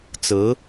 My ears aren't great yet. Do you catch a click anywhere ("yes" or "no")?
no